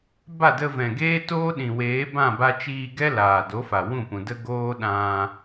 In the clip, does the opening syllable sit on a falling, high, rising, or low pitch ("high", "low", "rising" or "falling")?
falling